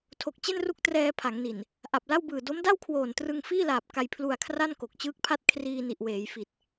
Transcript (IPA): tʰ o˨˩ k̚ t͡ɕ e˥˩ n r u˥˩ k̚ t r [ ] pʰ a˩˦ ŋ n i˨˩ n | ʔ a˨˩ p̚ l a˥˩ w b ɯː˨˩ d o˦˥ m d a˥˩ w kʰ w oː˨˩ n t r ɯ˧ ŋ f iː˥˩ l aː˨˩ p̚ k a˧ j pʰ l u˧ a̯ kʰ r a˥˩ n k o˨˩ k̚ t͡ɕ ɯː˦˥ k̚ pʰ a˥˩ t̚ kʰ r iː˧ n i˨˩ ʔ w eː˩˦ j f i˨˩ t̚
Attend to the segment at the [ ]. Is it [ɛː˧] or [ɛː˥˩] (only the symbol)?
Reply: ɛː˧